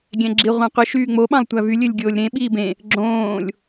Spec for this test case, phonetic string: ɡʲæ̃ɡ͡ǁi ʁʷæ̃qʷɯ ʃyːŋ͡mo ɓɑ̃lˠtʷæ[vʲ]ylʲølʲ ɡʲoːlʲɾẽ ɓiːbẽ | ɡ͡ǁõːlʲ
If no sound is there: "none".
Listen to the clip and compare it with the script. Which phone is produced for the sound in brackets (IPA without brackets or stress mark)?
v